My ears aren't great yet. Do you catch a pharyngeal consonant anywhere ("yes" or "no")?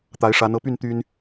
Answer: no